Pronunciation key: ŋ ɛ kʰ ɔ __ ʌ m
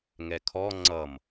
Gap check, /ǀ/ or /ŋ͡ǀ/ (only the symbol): ŋ͡ǀ